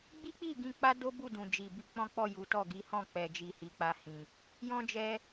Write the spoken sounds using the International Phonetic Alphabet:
ɡ͡bi˦k͡pi˦˨ɡĩ˧ k͡pa˦do˦ bu˦˨dũ˨ d͡ʒi˨bi˧ k͡pɔ̃˦k͡pɔ˦˨ ju˨˦tɔ˦˨ ɡi˨˦hɔ̃˦˨k͡pɛ˨d͡ʒi˨ hi˨˦k͡pa˧hĩ˨ | jɔ̃˦d͡ʒɛ˧

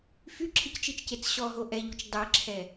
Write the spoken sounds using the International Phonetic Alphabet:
fyǁʰict͡ʃit͡ʃcet͡s ɕɔɦo ʔɛʎut͡ʃ dˤeǁʰɛ

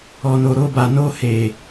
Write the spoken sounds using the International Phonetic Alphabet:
ɔ˨no˨ ɾo˧ba˨ no˧he˨

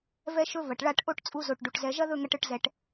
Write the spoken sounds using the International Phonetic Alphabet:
vɛ˧ʃɵ˧ vɐ˨ʈɭa˦˨ʈ ʔo˦ʈt͡sʼu˧zo˨ʈ ɖu˨ʈzɛ˧ ʒɐ˦ðɵ˦˨ŋɐ˧ʈ ɯ˧ʈzɛ˧ʈ

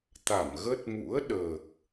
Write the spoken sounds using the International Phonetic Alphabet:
t̪a˧˩mɣə˦˥t̚ mṵ˧˥ə̯ɗəː˨˩k̚

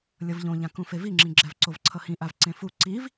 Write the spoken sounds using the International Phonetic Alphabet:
lʲʌvʎõʎãkũ feviŋ͡ǁĩɡ͡ǁɛv ǀovǀʰʌhĩʔav ǀẽfu ǀiv

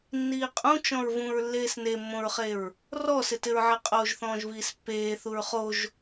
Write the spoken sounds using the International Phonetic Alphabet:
nːiːqʼũ t͡ʃɔ̃ɹvũɹ lːeːsnemːõɹχeɹ | rɔsɪtɪɹʕɛ qʼoːʒθɔ̃ːʒviːspːeː θuɹχoʒ

